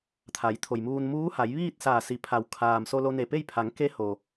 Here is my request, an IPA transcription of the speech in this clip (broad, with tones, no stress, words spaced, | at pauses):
t̪ʰa˩˧jt̪ʰo˩jmuː˧n muː˧˥ha˩˧j ʋiː˥˨t̚saː˧˩si˩˧pʰa˩w kʰaː˩m so˧lo˧ne˧˩pe˥˨j pʰa˩˧ŋke˧˥ho˩